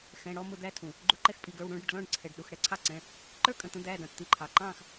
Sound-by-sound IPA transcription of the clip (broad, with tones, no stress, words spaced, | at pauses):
xɛ̃˩˧˩ɽɔ˥˨ mʊ˧˩˧d̪æ˨˦ tʰũ˩ | ɡ͡ǃu˨˦ǃɛ˨˦x pʼi˩˧˩ɡə˞˩˧˩wɽũː˥˨ɖɽɪ˩˧˩ɖ lɔ̃˥˨ɖ ǀʰɛ˩ɖ ɗu˩˧˩xɽɛ˩ǀʰɑ˥˨ǀɛ̃˩˧˩ | ǃə˞˥˨kʼə̃˩˧˩t̪ə̃˨˦ d̪æː˩˧˩dɑ̃˩tt̪i˧˩˧ǃʰɑ˩ ǃɑ̃ː˥˨x